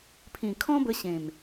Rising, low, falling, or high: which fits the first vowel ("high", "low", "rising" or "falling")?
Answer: low